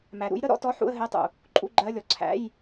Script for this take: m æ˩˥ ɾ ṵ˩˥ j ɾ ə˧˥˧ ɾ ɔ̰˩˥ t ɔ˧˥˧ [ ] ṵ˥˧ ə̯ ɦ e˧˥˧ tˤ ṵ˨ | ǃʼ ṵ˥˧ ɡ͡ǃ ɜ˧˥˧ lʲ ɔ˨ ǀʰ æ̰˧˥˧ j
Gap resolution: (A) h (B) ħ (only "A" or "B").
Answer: B